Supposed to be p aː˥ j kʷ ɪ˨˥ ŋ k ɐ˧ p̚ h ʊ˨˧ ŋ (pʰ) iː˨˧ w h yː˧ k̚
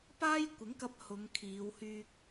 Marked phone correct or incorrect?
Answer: incorrect